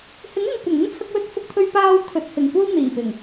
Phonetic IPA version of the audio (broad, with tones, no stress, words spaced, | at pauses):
hɪ˨˥ŋɪ˨ŋ kʷɐ˨˩ŋɪ˥ŋt͡sʰɐ˧k̚wɵ˧t̚ fʊ˧k̚t̪ʰɵ˧ɥpaː˧w kʰɵ˨t̚hɪ˨˩ŋ kʷɐ˥w n̪iː˨˩pɪ˨˩ŋ